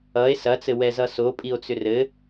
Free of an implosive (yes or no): yes